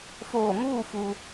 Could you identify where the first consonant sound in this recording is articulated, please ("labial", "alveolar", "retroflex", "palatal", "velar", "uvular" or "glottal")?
labial